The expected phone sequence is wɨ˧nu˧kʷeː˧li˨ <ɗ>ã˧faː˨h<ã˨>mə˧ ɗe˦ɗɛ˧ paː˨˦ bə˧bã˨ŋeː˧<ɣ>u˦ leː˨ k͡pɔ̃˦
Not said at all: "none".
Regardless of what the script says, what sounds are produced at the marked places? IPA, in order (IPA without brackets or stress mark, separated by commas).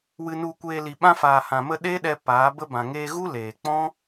ɓ, ã˨, ɣ